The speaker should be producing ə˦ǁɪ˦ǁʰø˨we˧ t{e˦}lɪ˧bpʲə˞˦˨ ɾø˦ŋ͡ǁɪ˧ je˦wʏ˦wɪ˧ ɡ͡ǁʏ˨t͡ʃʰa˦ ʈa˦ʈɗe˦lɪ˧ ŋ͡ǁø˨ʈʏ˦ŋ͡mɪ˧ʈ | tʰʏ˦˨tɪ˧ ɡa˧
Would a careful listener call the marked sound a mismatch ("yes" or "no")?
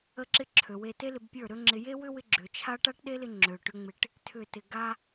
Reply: no